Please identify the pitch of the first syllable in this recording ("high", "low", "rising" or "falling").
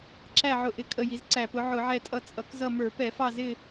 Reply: falling